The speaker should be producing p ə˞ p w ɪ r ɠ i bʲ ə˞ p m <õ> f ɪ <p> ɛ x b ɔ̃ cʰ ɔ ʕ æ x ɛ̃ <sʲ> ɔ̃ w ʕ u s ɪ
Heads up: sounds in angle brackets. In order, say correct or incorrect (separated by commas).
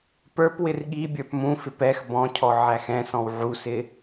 incorrect, correct, incorrect